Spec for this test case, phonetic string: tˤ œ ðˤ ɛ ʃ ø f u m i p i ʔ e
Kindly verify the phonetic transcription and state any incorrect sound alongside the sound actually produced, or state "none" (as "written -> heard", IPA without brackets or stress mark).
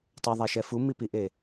ø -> ɛ